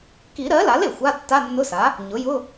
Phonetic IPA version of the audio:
ki˨˩˦ɾɜ˩˥la˩˥l e˩xʷa˧˥˧ tːa˧˥˧nːʊ˧˥˧sa˩˥ | ɲʊ˩˥jʊ˧˥˧

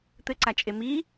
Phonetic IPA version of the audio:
t̪ɘ ǀat͡ʃʼemi

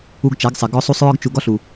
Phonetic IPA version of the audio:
u˧ɡt͡ʃa˨˦ɡsˤɛ˨ ɡɔ˧sˤu˧sˤ ɹɒ˧ɡt͡ʃu˨ɡɒ˧ɬu˨

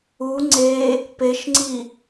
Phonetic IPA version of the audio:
u ŋ͡ǀe | peʃŋ͡ǀi

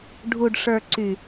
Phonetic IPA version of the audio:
ɖʱu˨ɖʂə˞˨ǀy˨

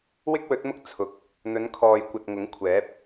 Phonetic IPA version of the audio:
wɪ˥k̚wɵ˨˥t̚mʊ˥k̚ t͡sʰʊ˨k̚ | n̪ɵ˨˧nkʰɔː˨jkʷɐ˨t̚ ŋʊ˨˥ŋkʷʰɛː˨˥p̚

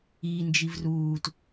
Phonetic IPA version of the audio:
i nd͡ʒivruːt

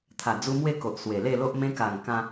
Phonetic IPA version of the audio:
t̪ʰa˨˩d͡zu˧ mwe˥˧ko˨ʔ swe˨˩le˥˧lo˦ʔ mẽ˧ka˨˩ŋ kã˧

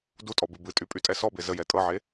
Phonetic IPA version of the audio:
dutʼɔ bɨbɨtʼy pʼytʼɛsɔbe zəjɛ tʼɤʕe

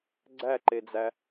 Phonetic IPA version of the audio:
ɡ͡ǀæǃed͡zæ

